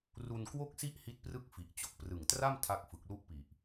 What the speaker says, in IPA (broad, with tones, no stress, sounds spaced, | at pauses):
r u˧ n k w o˥˩ k̚ s i˥˩ ʔ h i˦˥ t̚ p r ɯ˥˩ k̚ f i˨˩ ʔ t͡ɕ o˨˩ k̚ p r ɯ˨˩ ŋ t r a˥˩ m tʰ a˦˥ k̚ f ɯ˨˩ k̚ l u˦˥ ʔ p i˨˩ ʔ